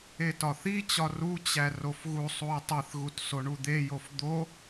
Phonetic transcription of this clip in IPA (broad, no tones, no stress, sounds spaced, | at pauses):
e t ɒ θ i t͡ɕ ɒ r u t͡ɕ æ r o f ɣ u sˤ u ə̯ tˤ e θ ɣ u t s o ɳ u d̪ e j o f d̪ o